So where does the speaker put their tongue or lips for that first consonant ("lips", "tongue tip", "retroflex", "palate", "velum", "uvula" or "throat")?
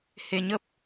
throat